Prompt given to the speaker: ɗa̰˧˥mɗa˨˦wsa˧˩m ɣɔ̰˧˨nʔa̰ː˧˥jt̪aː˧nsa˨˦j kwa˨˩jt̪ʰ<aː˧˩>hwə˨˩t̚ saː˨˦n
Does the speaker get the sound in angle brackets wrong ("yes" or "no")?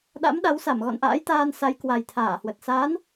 no